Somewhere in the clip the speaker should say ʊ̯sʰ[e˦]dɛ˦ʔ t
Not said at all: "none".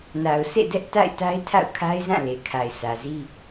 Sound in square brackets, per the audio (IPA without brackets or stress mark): ḛ˦˨